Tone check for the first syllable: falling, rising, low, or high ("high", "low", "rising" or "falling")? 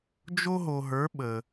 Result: high